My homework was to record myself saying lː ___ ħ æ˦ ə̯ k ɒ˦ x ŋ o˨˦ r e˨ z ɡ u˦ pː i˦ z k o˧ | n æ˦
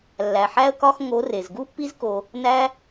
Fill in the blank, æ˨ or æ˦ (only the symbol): æ˨